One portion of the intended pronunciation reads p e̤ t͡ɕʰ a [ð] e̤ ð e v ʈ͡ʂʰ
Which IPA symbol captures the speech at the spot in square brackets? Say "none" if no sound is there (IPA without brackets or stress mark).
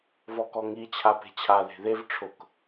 ð